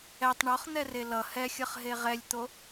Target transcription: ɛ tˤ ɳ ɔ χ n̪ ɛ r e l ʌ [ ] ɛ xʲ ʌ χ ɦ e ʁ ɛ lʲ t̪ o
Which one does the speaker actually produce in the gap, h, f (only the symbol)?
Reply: h